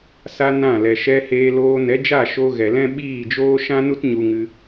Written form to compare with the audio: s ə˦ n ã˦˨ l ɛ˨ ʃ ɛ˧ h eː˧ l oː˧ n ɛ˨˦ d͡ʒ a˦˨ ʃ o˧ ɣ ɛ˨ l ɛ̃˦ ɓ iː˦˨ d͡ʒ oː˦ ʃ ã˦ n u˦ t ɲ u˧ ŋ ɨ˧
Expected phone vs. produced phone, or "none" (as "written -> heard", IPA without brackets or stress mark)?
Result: ə˦ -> a˦